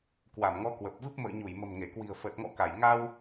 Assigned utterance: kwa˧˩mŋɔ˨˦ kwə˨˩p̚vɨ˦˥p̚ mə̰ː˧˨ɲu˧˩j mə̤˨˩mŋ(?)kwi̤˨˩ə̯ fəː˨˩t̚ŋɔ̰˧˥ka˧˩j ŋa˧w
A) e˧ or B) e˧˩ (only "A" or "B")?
B